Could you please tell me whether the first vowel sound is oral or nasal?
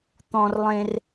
nasal